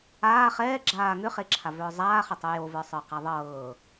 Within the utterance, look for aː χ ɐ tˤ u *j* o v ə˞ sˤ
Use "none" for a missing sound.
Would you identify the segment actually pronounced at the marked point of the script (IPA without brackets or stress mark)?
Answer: j